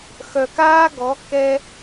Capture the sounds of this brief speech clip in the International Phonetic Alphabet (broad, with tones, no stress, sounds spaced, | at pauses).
x œ˨ k aː˦ ɡ ɔ˨˦ k ɛ˧